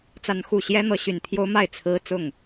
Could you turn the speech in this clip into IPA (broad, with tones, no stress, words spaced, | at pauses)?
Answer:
t͡sa˦n xu˥˨ ɕjɛ˦n̪ɤ˨˦ ɕy˨˩n t̪ʰjo˦ʊ̯ma˥˨ɪ̯ t͡sʰɹ̩˦ t͡sʊ˥˨ŋ